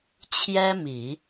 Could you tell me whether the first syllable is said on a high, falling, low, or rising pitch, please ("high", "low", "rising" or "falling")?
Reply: high